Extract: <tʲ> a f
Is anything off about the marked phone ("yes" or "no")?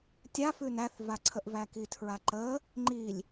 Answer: no